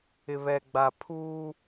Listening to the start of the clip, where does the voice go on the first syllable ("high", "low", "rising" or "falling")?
low